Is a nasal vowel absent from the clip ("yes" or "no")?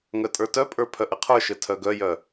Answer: yes